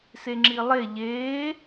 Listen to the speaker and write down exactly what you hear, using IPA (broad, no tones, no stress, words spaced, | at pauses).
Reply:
seŋ͡ǁilˠe ʎeː